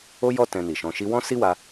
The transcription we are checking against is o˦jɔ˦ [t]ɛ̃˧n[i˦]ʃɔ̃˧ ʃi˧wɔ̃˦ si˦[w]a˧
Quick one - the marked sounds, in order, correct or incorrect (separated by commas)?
correct, incorrect, correct